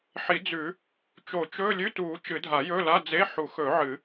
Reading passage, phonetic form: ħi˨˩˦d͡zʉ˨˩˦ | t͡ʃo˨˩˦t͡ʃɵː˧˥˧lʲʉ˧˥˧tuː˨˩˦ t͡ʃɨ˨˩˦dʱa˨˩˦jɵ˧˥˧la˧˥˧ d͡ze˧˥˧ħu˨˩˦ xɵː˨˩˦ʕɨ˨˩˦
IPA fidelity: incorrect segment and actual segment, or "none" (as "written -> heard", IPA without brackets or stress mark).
none